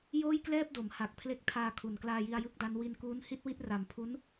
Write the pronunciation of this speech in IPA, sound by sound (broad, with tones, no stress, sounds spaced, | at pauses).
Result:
j oː˥˩ j k l ɛː˥˩ p̚ d o˩˦ m h a˨˩ k̚ pʰ l e˦˥ k̚ tʰ aː˧ kʰ u˨˩ n k l aː˧ j i˧ a̯ j ɯ˥˩ k̚ d a˦˥ n w i˧ n k uː˦˥ n h i˥˩ t̚ w i˥˩ t̚ r a˨˩ m pʰ u˦˥ n